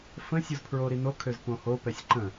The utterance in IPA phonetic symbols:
f ə̃ sʲ u z pʰ ɹ o ɾ i n o kʰ ø z p õ h o p ɛ sʲ ǃ ə̃

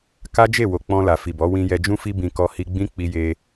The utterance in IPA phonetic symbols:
k a˦ d͡ʒ e˦˨ w o˨ k͡p ɔ̃˧ l a˨ f i˨ b ɔ˨˦ w ĩ˧ j ɛ˧ d͡ʒ ũ˦ f i˦ b ĩ˧ k ɔ˧ h i˧ ɡ͡b ĩ˦ k͡p i˧ j e˧

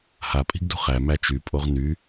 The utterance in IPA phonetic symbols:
h a pʼ i̤ ɡ d ṳ χ æ m æ t͡ʃ y pʼ o ʁ n y

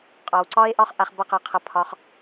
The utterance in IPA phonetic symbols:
qʼ ɒ˨ w ǀ ɒ˦ e̯ ʔ ɒ˦ χ ʔ a˧ χ b ʌ˦ q a˧ qʰ ʌ˧ pʰ ɒ˧ χ

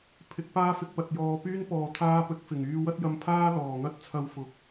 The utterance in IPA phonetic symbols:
pʰ ɪ˨˥ k̚ p aː˥ f ɪ˧ k̚ p ɐ˨ t̚ j ɔː˧ p yː˥ n p ɔː˨ t̪ʰ aː˧ p ɵ˨˥ t̚ f ɪ˨˩ ŋ yː˧ w ɐ˥ t̚ j ɐ˧ m pʰ aː˥ l ɔː˨˩ ŋ ɐ˥ t̚ t͡sʰ ɐ˧ w f ʊ˨ k̚

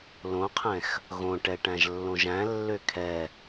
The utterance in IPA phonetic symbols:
l õ qʰ ɛ̃ x | ɣ õ ʈ ɛ ʈ æ̃ ʒ lː õ ʒ æ̃ lː ø kʰ ɛ

